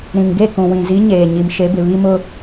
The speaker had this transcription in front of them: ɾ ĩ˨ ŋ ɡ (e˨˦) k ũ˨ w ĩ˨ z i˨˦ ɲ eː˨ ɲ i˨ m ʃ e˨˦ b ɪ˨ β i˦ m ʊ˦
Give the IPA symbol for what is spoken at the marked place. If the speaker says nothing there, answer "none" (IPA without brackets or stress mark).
e˦˨